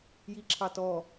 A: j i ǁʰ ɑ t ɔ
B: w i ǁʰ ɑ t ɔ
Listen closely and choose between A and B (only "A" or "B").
A